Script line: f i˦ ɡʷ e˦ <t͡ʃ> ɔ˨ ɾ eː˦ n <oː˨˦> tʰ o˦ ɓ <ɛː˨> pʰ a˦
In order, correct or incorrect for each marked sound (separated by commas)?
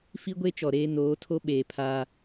correct, correct, incorrect